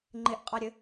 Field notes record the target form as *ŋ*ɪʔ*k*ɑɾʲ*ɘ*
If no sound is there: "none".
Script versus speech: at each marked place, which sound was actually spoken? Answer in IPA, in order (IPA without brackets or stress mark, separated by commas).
ŋ͡ǃ, qʼ, ɘ